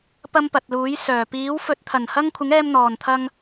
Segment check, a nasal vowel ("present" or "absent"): absent